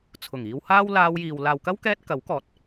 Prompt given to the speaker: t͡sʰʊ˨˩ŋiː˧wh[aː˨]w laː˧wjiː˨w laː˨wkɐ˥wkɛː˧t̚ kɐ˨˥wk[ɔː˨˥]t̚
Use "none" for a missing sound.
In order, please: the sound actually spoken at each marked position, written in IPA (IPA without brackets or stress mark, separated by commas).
aː˥, ɔː˨˥